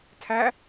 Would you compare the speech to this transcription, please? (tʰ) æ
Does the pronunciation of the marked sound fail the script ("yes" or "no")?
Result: no